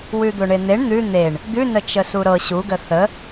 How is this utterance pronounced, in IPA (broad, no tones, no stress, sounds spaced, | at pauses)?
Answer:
w ʉ d̪ o ɳ e n̪ e ɳ n̪ ʉ n̪ e ɳ | d̪ ʉ n ə t͡ʃ ə s u ɾ ɤ ɕ u ɡ ə θ ə